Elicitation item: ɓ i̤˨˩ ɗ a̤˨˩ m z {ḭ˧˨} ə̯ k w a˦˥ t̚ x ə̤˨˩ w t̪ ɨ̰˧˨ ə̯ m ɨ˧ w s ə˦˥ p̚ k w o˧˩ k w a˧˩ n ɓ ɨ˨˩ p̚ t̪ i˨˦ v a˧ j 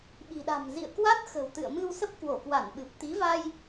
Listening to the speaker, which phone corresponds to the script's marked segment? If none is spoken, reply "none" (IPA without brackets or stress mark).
ḭ˧˨